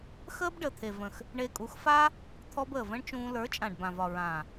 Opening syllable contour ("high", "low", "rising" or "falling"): high